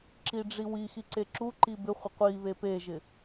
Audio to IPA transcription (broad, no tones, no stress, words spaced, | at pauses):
ǁiɖ͡ʐiwixi ǀeǁuǃi bɪχʷɪ qʷiβe peʒɪ